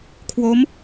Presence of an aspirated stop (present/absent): present